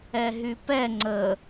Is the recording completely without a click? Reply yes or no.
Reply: no